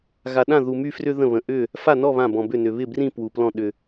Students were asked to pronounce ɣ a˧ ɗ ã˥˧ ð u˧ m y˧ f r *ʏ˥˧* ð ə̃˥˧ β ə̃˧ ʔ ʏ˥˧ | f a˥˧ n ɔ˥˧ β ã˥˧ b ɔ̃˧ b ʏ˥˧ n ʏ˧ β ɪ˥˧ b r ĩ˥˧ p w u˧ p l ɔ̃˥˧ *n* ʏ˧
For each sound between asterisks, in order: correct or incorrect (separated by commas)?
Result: incorrect, incorrect